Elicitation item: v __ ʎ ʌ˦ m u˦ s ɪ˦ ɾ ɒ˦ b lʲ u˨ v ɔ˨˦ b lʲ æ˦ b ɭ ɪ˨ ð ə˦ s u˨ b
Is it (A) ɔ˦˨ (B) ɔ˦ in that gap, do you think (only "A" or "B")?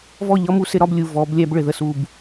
A